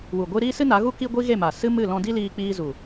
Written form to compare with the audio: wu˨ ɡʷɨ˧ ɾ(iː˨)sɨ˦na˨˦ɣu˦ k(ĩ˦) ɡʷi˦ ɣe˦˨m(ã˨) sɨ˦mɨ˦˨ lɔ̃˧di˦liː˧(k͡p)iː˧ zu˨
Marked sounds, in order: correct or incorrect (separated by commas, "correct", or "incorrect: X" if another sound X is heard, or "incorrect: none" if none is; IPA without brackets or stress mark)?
incorrect: iː˦, incorrect: i˦, incorrect: a˨, correct